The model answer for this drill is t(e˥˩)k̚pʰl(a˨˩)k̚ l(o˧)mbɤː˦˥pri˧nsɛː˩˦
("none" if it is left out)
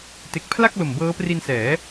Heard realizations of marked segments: e˨˩, a˥˩, o˨˩

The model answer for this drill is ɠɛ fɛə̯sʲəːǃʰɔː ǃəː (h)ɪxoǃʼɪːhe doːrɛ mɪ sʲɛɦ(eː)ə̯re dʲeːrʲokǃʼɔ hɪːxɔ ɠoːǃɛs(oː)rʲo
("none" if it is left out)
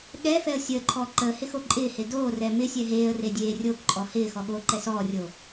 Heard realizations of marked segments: h, eː, ɔː

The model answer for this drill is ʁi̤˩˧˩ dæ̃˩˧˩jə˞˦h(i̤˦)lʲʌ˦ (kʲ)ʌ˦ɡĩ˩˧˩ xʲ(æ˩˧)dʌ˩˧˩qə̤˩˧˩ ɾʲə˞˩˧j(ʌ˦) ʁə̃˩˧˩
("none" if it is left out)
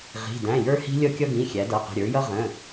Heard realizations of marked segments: i̤˦, kʲ, æ˩˧, ʌ˦

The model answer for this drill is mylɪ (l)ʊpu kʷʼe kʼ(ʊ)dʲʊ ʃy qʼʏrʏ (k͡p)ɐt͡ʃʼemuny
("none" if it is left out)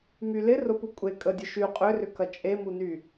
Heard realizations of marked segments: r, ə, k

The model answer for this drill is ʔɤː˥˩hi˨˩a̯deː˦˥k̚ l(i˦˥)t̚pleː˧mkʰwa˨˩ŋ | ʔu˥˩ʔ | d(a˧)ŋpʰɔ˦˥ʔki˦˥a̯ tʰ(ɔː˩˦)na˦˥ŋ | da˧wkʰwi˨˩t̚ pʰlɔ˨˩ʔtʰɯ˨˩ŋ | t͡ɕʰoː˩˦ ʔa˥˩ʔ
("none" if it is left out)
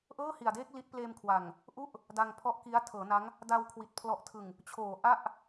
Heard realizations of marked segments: i˦˥, a˧, ɤː˩˦

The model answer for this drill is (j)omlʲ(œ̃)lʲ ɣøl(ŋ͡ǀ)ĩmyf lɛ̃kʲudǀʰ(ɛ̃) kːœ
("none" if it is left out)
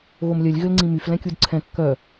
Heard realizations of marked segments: ɣ, œ, ŋ͡ǀ, ɛ̃

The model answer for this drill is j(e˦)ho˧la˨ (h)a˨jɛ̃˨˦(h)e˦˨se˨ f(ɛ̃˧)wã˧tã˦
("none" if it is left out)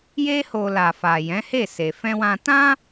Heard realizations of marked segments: e˦, f, h, ɛ̃˧

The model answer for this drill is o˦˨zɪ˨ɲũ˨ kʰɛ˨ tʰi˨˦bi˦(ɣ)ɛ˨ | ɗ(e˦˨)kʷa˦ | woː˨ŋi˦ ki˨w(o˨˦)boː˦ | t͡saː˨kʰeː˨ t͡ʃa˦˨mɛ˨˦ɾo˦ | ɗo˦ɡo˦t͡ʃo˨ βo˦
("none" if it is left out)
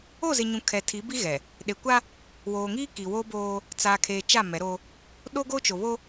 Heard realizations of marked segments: ɣ, e˨, o˦

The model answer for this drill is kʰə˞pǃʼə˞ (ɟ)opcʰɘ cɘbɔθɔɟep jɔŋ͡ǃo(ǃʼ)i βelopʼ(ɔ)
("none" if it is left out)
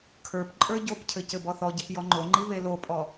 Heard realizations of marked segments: ɟ, ŋ͡ǃ, ɔ

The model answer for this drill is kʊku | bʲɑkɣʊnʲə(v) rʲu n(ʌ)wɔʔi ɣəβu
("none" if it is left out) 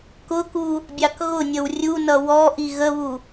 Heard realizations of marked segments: w, ʌ

